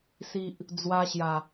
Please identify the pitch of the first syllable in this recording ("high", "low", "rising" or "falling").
low